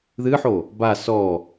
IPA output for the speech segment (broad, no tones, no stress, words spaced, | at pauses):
ðɨħo | ba sɔ